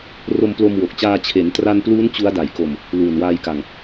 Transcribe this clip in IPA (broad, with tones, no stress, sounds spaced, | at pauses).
r o˧ m p l o˧ m w o˨˩ k̚ t͡ɕ aː˧ t͡ɕʰ e˩˦ n t r a˧ n p l uː˦˥ n t͡ɕ u˦˥ a̯ d a˨˩ j k o˧ m | l uː˨˩ n w aː˧ j k a˧ ŋ